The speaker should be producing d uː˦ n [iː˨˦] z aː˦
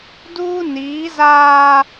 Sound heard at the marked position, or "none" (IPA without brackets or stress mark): iː˨˦